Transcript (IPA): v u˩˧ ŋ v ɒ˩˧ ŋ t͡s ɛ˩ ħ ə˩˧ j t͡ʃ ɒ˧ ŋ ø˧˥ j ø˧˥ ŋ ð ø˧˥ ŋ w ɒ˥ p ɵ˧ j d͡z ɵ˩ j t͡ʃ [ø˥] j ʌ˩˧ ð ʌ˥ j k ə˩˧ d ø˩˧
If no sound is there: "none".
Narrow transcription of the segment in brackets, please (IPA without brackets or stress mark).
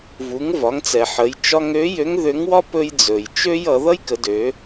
ø˥